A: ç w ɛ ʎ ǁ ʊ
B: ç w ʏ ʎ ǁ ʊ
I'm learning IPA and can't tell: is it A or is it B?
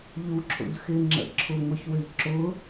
B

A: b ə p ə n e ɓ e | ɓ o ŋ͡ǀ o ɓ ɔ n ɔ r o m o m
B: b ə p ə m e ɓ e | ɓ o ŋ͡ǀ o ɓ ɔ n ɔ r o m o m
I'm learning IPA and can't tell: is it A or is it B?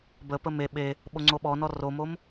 B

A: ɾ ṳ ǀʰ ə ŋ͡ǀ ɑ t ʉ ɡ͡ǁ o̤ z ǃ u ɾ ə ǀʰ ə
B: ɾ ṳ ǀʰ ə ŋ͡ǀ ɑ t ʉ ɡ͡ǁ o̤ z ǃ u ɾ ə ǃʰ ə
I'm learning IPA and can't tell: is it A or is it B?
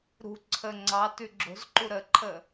B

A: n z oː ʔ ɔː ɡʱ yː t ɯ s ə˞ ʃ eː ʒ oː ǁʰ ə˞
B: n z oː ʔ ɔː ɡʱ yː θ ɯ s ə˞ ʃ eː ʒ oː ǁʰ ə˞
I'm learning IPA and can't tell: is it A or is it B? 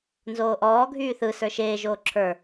B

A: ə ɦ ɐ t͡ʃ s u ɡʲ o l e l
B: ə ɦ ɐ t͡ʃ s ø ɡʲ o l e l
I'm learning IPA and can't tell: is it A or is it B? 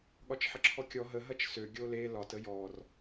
B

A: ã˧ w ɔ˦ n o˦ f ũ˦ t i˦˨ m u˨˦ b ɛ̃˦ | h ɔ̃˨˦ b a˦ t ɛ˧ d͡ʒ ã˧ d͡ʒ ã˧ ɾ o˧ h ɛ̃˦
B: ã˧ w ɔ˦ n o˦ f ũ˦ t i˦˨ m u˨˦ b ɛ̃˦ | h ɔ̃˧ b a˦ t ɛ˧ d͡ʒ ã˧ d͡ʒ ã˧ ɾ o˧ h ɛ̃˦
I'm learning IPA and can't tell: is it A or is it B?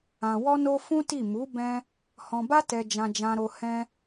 B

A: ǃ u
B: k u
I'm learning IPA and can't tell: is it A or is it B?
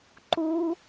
A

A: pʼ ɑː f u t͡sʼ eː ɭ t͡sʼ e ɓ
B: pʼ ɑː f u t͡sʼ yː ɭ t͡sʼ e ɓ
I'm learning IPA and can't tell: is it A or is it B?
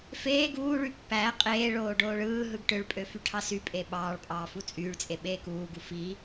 B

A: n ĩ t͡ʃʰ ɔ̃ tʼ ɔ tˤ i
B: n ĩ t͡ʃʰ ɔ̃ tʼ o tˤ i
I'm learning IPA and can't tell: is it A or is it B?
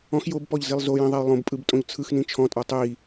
A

